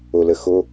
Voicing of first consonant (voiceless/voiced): voiced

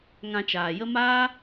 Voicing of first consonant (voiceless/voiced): voiced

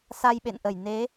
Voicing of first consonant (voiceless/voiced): voiceless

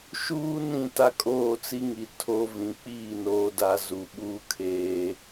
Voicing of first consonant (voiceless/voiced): voiceless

